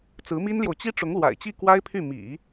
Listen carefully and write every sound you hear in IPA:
t͡s ɹ̩˧˥ m i˥ n l j o˨ ʊ̯ t͡ɕ i˥ ʈ͡ʂ ʊ˧˥ ŋ l w a̰˨˩ ɪ̯ t͡ɕ i˥˩ k w a˥ ɪ̯ pʰ y˥˩ m ḭ˨˩˦

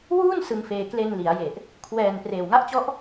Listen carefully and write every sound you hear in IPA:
w uː˥˩ n s ɯ˧ ŋ f eː˧ k l e˧ n l i˩˦ a̯ j e˨˩ ʔ | kʰ w ɛː˨˩ n p r eː˨˩ w ŋ a˦˥ ʔ t͡ɕ ɔ˦˥ ʔ

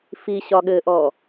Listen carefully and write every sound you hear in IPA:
f i ɕ ɒ ɠ ɘ ʔ ɔ

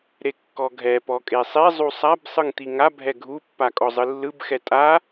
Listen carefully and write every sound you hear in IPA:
ɾ e kː ɔ ɡʱ ɛ p ɔ kʼ e sˤ e zˤ u sˤ a b sˤ ɯ ŋ t̪ i ŋ a bʱ ɛ ɡʱ u pː a kʼ ɔ zˤ ɯ lː ɯ b x ɛ tʼ a

